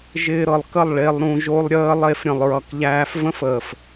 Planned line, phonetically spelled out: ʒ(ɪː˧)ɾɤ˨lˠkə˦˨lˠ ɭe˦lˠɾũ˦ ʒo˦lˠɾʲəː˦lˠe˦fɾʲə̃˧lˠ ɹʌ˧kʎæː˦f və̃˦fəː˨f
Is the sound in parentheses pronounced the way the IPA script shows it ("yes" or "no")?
yes